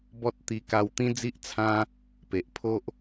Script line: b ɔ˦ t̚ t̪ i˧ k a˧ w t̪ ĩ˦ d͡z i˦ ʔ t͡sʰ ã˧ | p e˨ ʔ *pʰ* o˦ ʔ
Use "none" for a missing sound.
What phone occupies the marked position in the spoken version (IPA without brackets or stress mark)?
pʰ